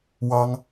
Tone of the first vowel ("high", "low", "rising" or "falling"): high